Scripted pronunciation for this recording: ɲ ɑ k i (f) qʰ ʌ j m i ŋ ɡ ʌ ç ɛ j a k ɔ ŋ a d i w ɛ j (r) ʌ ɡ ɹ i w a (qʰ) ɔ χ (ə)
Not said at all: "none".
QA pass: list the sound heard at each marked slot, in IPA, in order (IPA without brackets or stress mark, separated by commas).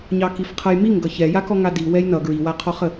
f, n, qʰ, ə